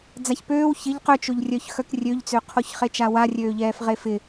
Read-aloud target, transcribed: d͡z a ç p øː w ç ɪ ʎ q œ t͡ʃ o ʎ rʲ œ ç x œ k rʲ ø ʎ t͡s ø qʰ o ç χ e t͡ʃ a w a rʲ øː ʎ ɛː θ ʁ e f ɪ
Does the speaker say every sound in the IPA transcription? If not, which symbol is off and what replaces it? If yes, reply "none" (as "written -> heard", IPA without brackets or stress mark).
θ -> f